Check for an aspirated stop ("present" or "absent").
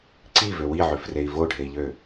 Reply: absent